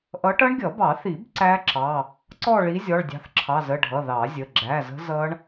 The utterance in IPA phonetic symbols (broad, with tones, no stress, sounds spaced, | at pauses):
ʔ ʌ˨˦ ʈ ʌ˦˥ ɳ ɡʲ ʌ˨˩˦ b ɑ˨˩˦ θ i˨˩˦ b ǀ æ˦˥ ǁ ɑ˩˧˩ | ǀ ɔ˦˨ ɭ i˨˦ zʲ ɔ˩˧˩ ɭ dʲ ɑ̤˨˦ θ ǁʰ ɑ˩˧˩ z ə˩˧˩ ɖʱ ʌ˩˧˩ ð ɑ˨˩˦ zʲ ə˩˧˩ ɡ͡ǁ æ˩˧˩ z ə̤˦˥ z ʌ˦˥ ɳ